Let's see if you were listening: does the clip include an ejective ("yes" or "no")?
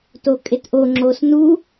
yes